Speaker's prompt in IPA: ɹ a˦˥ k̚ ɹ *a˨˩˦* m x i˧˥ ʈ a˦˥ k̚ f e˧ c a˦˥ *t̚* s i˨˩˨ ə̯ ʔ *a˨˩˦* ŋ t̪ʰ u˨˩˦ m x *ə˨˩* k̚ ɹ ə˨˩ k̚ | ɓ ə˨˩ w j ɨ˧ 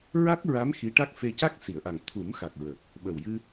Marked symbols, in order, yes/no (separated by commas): no, no, no, no